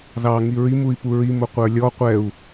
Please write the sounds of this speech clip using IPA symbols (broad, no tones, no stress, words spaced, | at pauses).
ðɑ ŋiɹimui̯ puɹi mʊqʷə˞lʲɔ qʷɛu̯